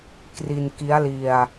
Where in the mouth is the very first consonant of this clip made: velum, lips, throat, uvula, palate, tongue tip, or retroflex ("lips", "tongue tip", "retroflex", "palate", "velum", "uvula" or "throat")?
velum